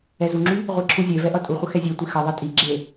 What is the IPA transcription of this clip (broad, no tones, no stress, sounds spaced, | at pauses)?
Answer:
ɛ z u ŋ͡ǁ y | ʁʷ i ǁʰ u zʲ e v ɛ ʔ ʌ tʼ u χʷ ə x ɛ zʲ e tʷ i x ʌ ðˤ ɛ tʼ i ɡ͡ǁ e